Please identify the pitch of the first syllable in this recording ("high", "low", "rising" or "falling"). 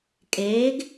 rising